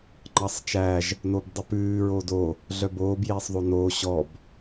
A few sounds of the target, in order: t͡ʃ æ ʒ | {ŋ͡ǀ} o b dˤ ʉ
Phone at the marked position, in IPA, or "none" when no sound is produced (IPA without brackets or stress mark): n